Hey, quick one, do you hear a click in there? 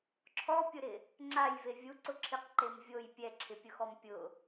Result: yes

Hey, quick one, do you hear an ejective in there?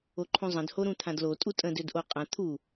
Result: yes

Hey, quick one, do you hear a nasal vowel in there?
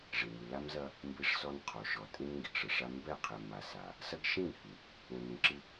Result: yes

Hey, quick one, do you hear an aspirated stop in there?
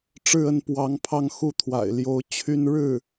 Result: yes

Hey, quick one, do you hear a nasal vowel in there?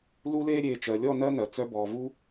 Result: no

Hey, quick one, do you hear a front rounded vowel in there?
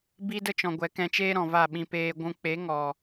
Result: no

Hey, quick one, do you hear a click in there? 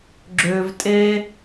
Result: yes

